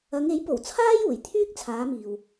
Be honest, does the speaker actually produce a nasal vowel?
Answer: no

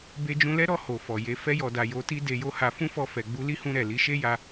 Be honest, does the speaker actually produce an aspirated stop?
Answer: no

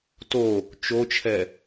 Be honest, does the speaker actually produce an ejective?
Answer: no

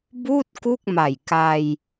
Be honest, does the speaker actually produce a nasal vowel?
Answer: no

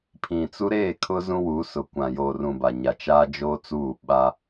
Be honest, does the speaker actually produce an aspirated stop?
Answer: yes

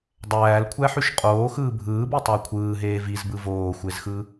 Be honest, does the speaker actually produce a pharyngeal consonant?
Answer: yes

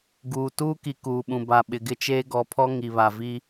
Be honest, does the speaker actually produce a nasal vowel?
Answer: yes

